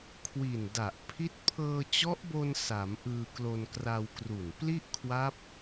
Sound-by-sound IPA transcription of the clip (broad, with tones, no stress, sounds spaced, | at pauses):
kʰ w i˨˩ n d a˨˩ ʔ pʰ i˦˥ t̚ pʰ ɤː˧ t͡ɕ ɔ˦˥ ʔ b o˧ n s a˩˦ m ʔ ɯː˧ k l o˧ n k r a˧ w k r u˨˩ n p l i˥˩ ʔ kʰ w a˦˥ p̚